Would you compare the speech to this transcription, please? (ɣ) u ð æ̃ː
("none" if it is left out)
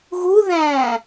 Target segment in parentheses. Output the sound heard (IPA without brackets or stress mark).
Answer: ɣ